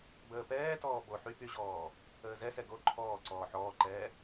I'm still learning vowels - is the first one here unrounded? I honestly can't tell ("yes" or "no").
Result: yes